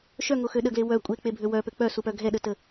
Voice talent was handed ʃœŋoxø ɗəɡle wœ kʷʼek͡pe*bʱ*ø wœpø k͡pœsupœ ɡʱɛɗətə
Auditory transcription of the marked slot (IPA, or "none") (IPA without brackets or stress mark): bʱ